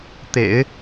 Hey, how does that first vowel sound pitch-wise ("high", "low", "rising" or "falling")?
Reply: low